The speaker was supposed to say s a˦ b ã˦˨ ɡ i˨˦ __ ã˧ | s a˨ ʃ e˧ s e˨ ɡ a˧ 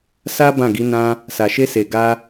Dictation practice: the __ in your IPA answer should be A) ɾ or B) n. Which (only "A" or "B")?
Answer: B